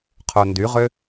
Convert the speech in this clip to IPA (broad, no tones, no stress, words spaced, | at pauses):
qʰondyʁø